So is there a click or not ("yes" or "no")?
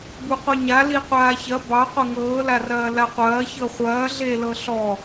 no